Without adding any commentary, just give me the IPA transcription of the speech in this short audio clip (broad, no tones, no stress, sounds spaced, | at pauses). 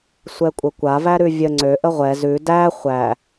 sʷ ɛ kʷʼ ə kʷ a v æ ɾ ʉ vʲ ə ŋ͡ǀ ø ʔ ə ʁʷ ɛ z ʉ d æ χʷ æ